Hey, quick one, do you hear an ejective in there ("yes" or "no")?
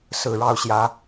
no